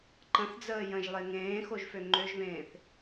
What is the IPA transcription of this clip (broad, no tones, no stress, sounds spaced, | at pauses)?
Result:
ǃ ə̃ θ d͡z əː j ə̃ ʒ lˠ e ŋ ẽː x o ʒ f ø ŋ͡ǃ ø ʒ β ẽː θ